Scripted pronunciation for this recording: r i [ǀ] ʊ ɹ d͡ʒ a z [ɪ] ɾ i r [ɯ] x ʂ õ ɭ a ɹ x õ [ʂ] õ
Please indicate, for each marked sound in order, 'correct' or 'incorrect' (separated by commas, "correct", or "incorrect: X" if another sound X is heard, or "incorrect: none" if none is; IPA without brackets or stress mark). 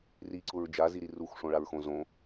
correct, incorrect: i, incorrect: u, incorrect: z